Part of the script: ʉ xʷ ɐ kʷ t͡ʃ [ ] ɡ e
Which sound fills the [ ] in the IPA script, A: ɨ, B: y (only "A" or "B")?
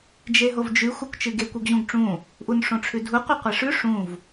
A